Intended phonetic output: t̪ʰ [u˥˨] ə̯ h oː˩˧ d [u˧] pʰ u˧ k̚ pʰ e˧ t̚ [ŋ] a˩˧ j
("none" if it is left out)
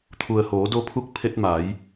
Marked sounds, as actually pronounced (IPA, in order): u˩, o˧, m

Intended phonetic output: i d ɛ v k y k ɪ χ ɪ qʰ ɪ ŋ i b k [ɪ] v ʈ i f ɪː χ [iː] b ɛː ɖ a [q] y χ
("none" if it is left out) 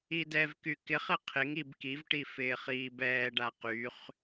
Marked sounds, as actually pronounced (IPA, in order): i, iː, q

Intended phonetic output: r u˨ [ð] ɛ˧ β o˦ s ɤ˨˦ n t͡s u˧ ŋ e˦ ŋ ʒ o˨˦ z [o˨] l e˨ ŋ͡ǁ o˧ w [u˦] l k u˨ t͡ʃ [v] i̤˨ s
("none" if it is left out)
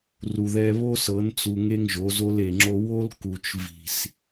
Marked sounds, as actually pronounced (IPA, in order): ð, o˧, o˦, v

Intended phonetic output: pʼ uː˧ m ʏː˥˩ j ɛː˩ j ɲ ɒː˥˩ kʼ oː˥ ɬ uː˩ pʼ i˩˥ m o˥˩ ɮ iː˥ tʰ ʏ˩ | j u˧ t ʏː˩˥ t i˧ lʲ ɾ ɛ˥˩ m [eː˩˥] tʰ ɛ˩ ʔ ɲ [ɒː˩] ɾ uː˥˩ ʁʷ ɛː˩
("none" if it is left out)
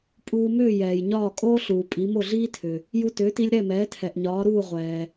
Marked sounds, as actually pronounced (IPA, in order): ɛː˩˥, ɒː˩˥

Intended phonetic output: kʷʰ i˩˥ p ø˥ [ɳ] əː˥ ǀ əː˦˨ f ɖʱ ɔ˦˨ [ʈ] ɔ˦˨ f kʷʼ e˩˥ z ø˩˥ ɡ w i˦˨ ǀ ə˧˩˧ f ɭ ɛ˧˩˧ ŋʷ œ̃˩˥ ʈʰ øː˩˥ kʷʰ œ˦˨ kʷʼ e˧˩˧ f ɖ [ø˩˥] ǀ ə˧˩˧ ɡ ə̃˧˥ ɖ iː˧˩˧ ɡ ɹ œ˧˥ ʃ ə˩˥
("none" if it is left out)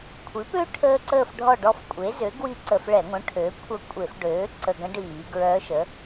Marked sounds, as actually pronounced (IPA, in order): ʈʰ, ɖ, øː˩˥

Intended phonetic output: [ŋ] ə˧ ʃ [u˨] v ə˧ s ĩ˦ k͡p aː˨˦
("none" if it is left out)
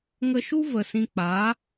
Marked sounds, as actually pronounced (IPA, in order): ŋ, u˦

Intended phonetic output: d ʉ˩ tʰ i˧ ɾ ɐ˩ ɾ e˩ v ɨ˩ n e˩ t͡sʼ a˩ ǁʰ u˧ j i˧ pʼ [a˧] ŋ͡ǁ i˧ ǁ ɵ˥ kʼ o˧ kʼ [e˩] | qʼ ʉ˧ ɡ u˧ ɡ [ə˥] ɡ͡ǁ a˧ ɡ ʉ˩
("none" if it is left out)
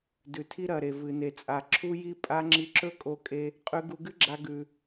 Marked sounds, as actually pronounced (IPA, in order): a˧, e˧, ɨ˥

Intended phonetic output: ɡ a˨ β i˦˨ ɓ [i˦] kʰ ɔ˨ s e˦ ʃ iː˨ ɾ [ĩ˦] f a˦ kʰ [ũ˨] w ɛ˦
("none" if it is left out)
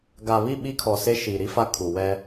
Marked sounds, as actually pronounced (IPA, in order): i˦, i˦, u˨

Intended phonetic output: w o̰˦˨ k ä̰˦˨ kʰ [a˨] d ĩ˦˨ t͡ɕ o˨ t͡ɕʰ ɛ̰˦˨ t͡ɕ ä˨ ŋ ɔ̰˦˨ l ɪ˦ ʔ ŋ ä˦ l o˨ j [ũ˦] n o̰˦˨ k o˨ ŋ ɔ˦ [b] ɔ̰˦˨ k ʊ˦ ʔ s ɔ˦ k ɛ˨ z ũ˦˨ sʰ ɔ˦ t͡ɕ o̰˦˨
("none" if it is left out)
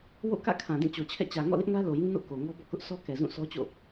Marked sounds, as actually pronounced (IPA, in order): ã˨, ũ˦, b

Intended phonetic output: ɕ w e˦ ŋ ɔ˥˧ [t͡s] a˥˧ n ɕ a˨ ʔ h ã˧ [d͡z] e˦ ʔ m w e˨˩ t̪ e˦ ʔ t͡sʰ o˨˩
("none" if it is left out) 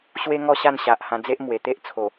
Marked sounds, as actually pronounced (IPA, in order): ɕ, d͡z

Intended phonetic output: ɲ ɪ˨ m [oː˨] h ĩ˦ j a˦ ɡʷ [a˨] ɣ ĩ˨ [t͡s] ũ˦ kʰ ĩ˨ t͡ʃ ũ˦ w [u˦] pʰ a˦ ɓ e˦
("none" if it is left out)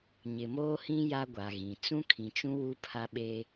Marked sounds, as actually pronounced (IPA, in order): oː˦, a˨, t͡s, u˦

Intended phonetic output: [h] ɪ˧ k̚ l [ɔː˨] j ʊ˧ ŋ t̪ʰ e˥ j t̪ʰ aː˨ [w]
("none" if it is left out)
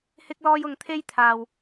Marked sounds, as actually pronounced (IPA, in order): h, ɔː˧, w

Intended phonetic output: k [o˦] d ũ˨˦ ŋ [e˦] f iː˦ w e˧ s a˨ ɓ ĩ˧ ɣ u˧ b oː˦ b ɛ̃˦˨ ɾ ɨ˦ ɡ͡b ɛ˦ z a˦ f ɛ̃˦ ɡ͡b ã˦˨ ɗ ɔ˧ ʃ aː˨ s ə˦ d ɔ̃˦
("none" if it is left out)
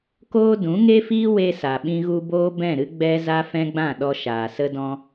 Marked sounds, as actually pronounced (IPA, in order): oː˦, e˦

